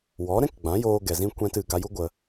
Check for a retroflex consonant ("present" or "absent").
absent